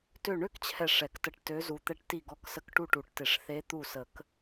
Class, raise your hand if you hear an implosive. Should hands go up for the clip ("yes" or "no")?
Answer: no